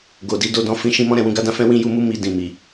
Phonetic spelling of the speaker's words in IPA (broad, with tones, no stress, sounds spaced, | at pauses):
ɡ o˨ d i˨˦ d o˧ d ɔ̃˧ f ĩ˧ ʃ ĩ˧ m ɔ̃˦ ɾ ɛ̃˧ w ũ˧ ɡ a˦ d ã˧ f ɛ̃˦ w ĩ˦ j u˦ m u˦ m i˧ d ĩ˨ m i˨